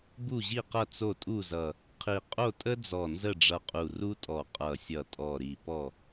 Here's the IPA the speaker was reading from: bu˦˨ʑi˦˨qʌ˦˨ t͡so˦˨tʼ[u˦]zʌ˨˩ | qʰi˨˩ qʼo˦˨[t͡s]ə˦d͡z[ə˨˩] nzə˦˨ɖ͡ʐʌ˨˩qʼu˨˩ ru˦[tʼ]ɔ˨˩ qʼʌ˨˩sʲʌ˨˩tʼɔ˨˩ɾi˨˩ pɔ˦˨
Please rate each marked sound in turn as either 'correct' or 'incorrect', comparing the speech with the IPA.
incorrect, incorrect, incorrect, correct

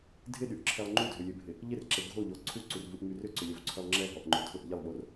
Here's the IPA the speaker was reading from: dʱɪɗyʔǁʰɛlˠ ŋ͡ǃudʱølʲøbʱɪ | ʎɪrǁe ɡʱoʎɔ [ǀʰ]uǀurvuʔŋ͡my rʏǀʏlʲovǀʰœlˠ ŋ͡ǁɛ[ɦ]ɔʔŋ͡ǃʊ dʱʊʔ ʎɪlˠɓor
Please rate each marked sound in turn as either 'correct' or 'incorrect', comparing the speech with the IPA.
correct, correct

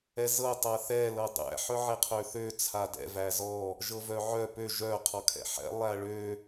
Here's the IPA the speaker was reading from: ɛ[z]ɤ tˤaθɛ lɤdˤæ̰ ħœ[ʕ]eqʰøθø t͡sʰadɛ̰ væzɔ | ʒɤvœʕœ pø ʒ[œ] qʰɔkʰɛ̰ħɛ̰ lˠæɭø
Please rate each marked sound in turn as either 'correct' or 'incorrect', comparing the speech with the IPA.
correct, correct, correct

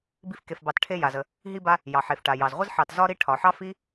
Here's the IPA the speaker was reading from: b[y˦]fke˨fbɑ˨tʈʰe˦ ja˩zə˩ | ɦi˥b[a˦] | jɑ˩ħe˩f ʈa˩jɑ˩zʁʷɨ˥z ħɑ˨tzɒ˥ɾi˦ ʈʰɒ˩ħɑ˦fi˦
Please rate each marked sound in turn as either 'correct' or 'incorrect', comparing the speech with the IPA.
incorrect, correct

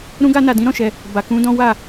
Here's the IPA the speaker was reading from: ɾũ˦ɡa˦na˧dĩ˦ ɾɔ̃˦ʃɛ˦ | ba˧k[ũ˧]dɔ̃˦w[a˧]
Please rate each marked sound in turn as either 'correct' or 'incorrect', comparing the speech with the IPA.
incorrect, incorrect

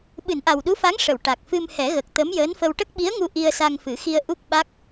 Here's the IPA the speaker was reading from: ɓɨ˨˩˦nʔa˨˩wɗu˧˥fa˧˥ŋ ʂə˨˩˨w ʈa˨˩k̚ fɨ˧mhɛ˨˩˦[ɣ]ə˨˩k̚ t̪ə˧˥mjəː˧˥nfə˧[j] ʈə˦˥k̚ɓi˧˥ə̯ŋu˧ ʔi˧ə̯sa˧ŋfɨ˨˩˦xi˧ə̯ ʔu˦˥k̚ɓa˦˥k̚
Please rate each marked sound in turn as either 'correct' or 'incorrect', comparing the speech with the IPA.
correct, incorrect

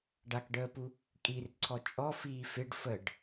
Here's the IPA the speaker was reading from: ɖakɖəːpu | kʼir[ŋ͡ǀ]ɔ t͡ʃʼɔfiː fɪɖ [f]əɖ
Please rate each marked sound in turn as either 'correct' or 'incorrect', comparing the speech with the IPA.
incorrect, correct

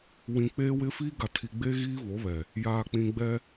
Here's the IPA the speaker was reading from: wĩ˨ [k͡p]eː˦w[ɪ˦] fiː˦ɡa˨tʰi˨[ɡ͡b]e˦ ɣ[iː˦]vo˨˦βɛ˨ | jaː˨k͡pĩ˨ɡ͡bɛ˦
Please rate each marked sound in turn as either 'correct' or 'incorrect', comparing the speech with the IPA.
correct, correct, correct, correct

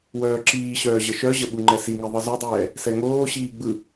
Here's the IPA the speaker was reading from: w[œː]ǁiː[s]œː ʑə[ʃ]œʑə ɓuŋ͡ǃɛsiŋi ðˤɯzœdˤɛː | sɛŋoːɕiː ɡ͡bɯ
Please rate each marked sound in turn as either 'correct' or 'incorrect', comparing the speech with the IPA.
correct, incorrect, correct

